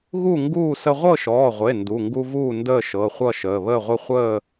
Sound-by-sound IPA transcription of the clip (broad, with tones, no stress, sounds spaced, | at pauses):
ɣ u˥˨ ŋ ɡ uː˥˨ s ə˦ ʁʷ ɤ˥˨ ʃ ɔː˩˧˩ ʁʷ e˩˧˩ n d u˩˧˩ ŋ ɡ u˦ v uː˥˨ n d əː˥˨ ʃ ɤ˩˧˩ χʷ ʌ˥˨ ʃ əː˩˧˩ β əː˥˨ ʁʷ ə˥˨ χʷ əː˥˨